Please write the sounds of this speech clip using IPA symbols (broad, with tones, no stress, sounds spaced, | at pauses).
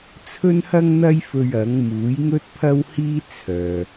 t͡sʰ ɵ˥ n h ɐ˥ ŋ n̪ ɐ˥ j f ɵ˧ ɥ ɐ˨˥ ŋ m uː˨˥ j ŋ ɵ˥ t̚ pʰ ɐ˥ w h iː˥ t͡sʰ œː˨